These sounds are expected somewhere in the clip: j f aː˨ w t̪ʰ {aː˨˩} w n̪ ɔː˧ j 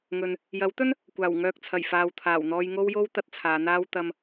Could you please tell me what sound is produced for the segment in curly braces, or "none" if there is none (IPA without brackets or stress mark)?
aː˨˩